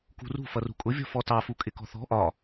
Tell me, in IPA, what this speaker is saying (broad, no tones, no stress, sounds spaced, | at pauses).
k ṳ r ṳ f ʌ r ṳ kʼ ʊ vʲ ɔ̤ f ɔ t ɑ f u kʼ ɪ k ɔ̤ θ ɔ̤ ʔ ɒ